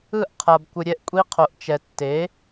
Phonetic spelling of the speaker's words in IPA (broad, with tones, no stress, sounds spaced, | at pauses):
ɯ˥˩ ʔ qʰ a˨ b kʷ ɯ˨ ɾʲ ɛ˥˩ ʔ kʷʼ i˦˥ qʰ o˨ ʔ t͡ʃ ɛ˨ tː e˩˥